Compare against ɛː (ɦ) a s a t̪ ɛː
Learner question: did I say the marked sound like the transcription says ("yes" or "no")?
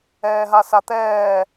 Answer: yes